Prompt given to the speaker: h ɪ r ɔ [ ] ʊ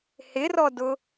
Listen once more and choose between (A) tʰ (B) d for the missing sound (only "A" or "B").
B